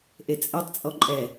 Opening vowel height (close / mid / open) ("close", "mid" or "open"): mid